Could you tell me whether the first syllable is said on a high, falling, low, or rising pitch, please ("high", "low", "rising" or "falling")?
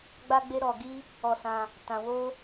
high